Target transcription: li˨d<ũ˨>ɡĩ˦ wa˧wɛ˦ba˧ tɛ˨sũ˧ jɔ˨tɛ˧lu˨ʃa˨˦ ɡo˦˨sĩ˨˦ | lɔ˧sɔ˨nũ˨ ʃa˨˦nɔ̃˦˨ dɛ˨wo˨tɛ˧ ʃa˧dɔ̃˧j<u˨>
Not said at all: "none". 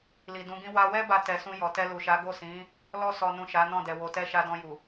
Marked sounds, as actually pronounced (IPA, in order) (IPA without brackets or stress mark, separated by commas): ũ˨˦, u˨